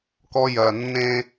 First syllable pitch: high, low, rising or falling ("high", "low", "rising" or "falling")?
high